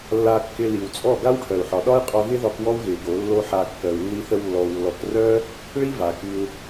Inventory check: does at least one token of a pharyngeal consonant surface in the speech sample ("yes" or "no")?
yes